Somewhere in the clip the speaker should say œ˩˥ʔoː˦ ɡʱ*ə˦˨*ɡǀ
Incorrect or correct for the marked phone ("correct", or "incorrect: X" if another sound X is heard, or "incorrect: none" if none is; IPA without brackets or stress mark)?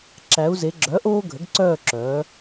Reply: incorrect: ə˩˥